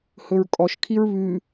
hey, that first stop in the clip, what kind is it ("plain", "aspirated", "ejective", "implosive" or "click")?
ejective